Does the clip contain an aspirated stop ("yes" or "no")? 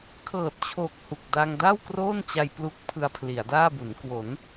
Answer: yes